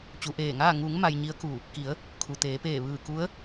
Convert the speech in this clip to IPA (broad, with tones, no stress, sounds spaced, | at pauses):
t͡ɕ u˩˧ ʔ eː˧˩ ŋ aː˥˨ ŋ u˩˧ ŋ m a˧ j ɲ i˧˥ ə̯ k u˧˩ | k i˩˧ ə̯ | kʰ u˩ t̪ eː˩˧ p eː˧˩ ʋ ɯː˧˩ k u˧˥ ə̯